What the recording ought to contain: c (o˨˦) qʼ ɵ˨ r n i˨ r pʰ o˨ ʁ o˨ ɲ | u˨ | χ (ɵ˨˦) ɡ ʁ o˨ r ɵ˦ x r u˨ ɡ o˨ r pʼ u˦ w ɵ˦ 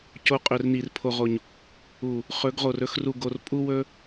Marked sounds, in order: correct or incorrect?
correct, correct

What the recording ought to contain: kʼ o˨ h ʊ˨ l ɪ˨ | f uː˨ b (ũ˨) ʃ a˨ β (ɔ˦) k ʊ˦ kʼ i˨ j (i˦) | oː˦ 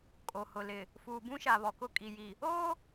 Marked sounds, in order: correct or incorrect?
incorrect, incorrect, incorrect

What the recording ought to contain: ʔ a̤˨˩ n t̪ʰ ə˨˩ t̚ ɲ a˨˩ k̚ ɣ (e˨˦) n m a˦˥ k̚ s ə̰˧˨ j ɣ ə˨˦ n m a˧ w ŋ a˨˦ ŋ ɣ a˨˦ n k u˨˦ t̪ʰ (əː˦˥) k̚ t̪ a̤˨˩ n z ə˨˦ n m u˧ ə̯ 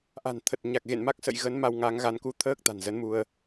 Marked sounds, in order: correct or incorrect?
incorrect, correct

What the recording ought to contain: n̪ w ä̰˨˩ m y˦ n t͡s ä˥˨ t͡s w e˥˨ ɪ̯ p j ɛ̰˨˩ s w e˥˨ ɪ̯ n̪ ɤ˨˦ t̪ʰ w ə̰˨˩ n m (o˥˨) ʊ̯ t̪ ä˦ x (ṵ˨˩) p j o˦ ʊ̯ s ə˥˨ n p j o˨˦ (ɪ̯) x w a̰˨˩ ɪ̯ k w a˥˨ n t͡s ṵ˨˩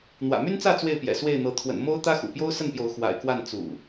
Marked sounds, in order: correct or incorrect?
incorrect, correct, incorrect

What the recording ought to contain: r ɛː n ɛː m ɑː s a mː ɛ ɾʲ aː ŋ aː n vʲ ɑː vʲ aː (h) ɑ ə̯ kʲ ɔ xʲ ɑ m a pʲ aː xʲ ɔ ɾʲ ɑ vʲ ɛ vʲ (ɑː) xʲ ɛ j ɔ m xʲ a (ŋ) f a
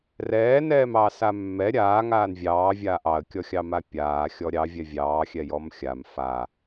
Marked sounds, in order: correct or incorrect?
incorrect, correct, incorrect

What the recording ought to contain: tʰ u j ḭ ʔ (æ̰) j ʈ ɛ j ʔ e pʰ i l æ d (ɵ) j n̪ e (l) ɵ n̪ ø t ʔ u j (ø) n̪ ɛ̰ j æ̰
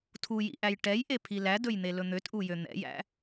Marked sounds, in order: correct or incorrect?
incorrect, correct, correct, correct

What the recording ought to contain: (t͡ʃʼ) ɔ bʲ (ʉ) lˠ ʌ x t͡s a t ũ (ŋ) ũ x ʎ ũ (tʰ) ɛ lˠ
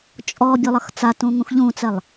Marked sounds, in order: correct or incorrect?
correct, incorrect, correct, incorrect

